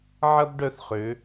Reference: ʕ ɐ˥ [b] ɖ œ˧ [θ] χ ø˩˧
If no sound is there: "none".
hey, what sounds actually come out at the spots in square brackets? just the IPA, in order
b, θ

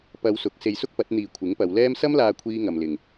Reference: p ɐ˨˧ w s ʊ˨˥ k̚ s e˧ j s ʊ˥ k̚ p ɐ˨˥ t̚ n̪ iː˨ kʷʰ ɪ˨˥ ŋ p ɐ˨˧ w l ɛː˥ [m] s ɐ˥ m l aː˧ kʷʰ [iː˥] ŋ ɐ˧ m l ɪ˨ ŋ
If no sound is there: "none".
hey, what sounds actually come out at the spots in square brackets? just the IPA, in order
m, iː˥

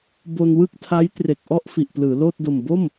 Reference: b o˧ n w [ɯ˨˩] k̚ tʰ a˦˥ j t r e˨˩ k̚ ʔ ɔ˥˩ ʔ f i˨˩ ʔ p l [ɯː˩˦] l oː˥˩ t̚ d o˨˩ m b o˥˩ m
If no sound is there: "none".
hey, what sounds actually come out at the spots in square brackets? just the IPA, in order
ɯ˥˩, ɯː˩˦

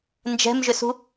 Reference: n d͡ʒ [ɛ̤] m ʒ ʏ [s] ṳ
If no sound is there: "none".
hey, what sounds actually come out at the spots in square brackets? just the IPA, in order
ɛ̤, s

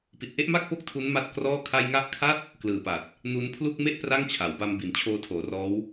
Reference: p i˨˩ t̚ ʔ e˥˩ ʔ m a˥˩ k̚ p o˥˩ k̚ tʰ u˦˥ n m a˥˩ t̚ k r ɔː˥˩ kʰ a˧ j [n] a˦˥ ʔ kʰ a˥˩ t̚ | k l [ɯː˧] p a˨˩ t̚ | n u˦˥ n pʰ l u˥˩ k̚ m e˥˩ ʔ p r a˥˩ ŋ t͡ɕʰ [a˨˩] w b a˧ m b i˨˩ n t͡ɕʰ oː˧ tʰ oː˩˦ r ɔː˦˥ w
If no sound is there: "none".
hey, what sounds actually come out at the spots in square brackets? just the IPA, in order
ŋ, ɯː˨˩, a˩˦

